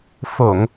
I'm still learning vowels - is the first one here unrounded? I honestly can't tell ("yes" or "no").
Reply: no